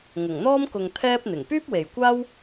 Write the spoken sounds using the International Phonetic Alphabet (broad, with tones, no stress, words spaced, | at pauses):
ŋʊ˨˩ŋn̪ɔː˥m kʊ˨ŋ t̪ʰɛː˥p̚n̪ɪ˨˩ŋ pyː˥p̚we˨jkʷaː˥w